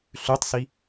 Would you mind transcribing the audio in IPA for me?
ɬʉtˤsi

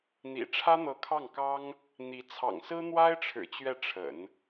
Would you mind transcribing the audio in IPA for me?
n̪ḭ˨˩ ʈ͡ʂʰä˥n̪ɤ˧˥kʰɑ˥˩ŋkɑ˥ŋ | n̪i˧˥t͡sʰɑ̰˨˩ŋ sɹ̩˥n̪wa˥ɪ̯ʈ͡ʂʰɻ̩˨˩ t͡ɕɥɛ˥˩ʈ͡ʂʰə̰˨˩˦n

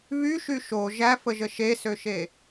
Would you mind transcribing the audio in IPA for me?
βyʃy ʃo ʒæfəʒə ʃesøʃe

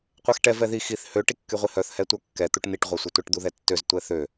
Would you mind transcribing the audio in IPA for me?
qʷɛxʈɛ vɛði xiθ hø ʈikːyʁʷihœθ hɛtʷœkːɛ t̪uʈn̪iʈ ʁʷœsʷɛtʷɛʈ d̪uðɛtːøz tʷɛθø

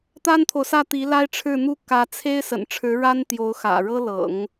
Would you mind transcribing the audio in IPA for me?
t̪a˥nt̪ʰo˨ʊ̯sä˥˩t̪i˧˥ la˥ɪ̯ʈ͡ʂʰɻ̩˥˧n̪u˥˩ kä˧˥t͡sʰe˥ɪ̯ sə̰˨˩nʈ͡ʂʰɻ̩˧˥ɻa˥n t̪jo˧˥ʊ̯xä̰˨˩ɻɤ˥lɤ̰˨˩˦ŋ

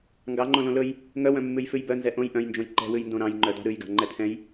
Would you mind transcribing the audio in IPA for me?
ŋɡɑŋ͡ǃõ lõlɵj | ŋœwœ̃ mːʉjfʉjbœnzɛ ʔõj ʔœ̃jnd͡ʒõj ǃɛ̤wʉjndõ ɾɑ̃jŋ͡ǃœ dɑ̤ɾʉjɡɑ̤ ŋ͡ǃɛtʰɛ̃j

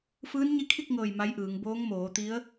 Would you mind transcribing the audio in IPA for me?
fɯː˧˥nɲi˧˥kʰi˥˨k̚ŋɤː˧˩j ma˧˥jʔɯː˩˧ŋ boː˧˥ŋmoː˩˧t̪i˧˥ə̯

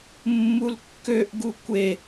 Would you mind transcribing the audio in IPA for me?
mːulkːøʔ ɡukʷe

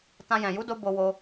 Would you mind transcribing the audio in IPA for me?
tã˧jɛ̃˨ ju˨˦do˧ bo˧wo˧

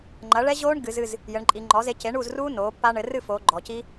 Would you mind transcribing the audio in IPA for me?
ŋ͡ǃɐ˩˥ɭɛ˦˥ʑoː˦˥ɳ ɡɨ˩˧zɨ˦˨z | jɘ˩˧ɳ ǃʼi˩˧ŋ͡ǃɔ˩˥ze˩˥ ce˩˥ɳuː˦˨zruː˦˥ noː˩˥pːa˦˥ ɳɘ˩˧rɨ˦˨foː˩˧ ɡ͡ǃɔ˩˧ci˦˥

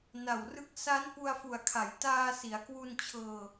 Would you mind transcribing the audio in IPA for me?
na˨˩wrɯ˦˥k̚ sa˦˥n pu˧a̯fu˨˩a̯kʰa˩˦jtaː˧ si˩˦a̯kwu˧nt͡ɕʰɤː˧

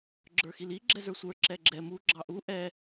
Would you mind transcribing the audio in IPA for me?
ɡ͡ǁə˞xili ɡ͡ǁɛzə˞sʷə˞ ǁɛɡ͡ǁɛ mu ɡ͡ǁɑʔu ʔɛ

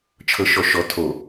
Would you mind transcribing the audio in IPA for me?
t͡ʃʰɤʃɔʃɔ tʰo

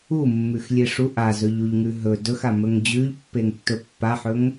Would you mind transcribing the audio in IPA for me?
umːʉxlʲe ʂu ʔazɵʎuʎŋʉ ɦɵ dɵxamɵŋ d͡ʑʉʎpːeŋtːɵ pːaħɵŋ

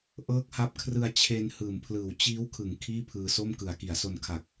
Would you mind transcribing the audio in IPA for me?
ʔɤː˦˥k̚ha˦˥p̚ kʰrɯ˧a̯ t͡ɕʰe˧n hɯː˨˩mpʰlɯː˨˩w t͡ɕiː˦˥w kʰɯ˩˦ŋ kʰiː˥˩pʰɯː˧ so˥˩mkɯ˨˩a̯ ki˩˦a̯so˧nkʰa˨˩k̚

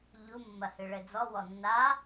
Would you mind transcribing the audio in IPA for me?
ʎu mːɐhɨɭɘd͡zɔ wɔnːa

